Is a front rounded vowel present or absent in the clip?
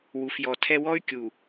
present